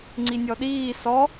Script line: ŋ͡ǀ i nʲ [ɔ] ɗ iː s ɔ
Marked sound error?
no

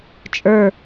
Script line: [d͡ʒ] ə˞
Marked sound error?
yes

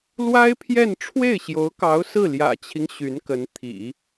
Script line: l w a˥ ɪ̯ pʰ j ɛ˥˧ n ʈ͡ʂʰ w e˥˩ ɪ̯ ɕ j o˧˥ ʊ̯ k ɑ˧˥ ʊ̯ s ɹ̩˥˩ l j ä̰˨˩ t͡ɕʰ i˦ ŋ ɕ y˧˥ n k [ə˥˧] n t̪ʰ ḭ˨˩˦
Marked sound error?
yes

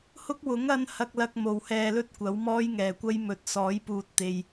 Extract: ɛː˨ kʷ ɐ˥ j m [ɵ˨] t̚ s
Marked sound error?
yes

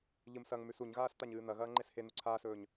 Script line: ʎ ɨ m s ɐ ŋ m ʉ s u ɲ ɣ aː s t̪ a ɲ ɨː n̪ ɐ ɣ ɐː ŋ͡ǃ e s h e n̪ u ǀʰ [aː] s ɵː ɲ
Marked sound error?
no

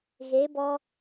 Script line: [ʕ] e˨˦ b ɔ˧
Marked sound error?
yes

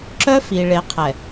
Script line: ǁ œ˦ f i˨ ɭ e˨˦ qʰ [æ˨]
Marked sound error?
yes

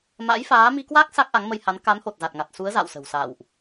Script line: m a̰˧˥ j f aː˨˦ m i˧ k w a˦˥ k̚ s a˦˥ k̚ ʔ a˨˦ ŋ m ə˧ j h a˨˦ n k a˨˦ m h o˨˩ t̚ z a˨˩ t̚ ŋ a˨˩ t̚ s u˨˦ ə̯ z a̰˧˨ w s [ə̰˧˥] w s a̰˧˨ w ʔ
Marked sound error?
yes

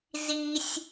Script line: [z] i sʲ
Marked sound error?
no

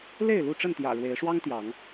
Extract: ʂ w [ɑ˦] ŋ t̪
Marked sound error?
no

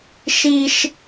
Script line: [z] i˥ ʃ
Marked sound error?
yes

